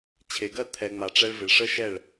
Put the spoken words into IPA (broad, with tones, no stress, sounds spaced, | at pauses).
t͡ɕʰ e˨ ɡ ɜ˦˨ t̪ʰ ɛ˨ ŋ͡m a˨ ʈ͡ʂ ɛ˧ ɭ v ɪ˨ ɭ ʂ ə˦ ʃ ɛ˦˨ ɭ